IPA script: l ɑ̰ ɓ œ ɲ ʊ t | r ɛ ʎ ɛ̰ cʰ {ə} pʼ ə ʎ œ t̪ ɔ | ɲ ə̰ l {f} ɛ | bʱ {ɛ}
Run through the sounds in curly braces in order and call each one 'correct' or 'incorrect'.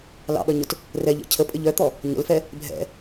correct, correct, incorrect

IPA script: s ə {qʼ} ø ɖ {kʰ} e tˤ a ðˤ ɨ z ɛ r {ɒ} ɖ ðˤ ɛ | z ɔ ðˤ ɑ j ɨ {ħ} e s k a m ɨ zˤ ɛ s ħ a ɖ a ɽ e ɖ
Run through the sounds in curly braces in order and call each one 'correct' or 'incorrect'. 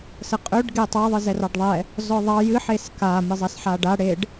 correct, incorrect, incorrect, correct

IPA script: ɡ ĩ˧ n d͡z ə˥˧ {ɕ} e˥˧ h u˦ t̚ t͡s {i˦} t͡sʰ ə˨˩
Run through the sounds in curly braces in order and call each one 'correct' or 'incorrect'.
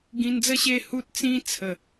correct, incorrect

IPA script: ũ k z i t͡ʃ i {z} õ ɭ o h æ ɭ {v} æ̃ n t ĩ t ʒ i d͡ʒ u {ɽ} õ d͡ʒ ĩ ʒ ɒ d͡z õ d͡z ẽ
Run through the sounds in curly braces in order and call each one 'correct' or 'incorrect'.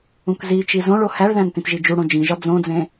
correct, incorrect, correct

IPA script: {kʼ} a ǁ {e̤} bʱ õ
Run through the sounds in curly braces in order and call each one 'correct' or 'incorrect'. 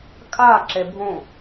correct, incorrect

